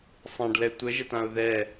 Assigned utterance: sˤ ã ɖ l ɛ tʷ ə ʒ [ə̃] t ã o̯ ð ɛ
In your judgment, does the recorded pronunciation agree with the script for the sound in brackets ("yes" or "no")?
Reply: no